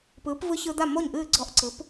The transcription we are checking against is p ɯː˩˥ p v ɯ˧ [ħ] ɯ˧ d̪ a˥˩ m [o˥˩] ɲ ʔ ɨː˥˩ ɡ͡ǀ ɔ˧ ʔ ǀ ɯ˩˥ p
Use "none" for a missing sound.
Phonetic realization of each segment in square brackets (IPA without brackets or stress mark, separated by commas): ç, o˥˩